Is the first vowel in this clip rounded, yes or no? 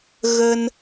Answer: no